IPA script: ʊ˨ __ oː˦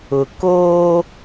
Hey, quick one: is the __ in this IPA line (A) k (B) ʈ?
A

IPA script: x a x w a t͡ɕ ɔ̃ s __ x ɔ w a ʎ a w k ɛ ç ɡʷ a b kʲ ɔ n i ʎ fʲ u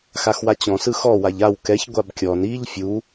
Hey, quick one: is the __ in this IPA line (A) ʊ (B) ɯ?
B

